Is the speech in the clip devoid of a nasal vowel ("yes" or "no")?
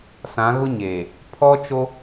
no